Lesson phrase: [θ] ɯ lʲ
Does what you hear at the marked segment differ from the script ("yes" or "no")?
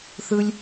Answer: no